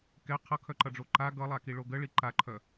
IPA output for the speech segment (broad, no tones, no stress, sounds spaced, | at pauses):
k ɛ qʰ ʌ kʰ œ ǃ ʌ ɖ͡ʐ o ǃ a ɡ ʌ lˠ a k i ɭ o ɡ ə ɭ i ǃ a ǃʰ œ